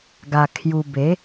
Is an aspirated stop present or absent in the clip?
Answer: present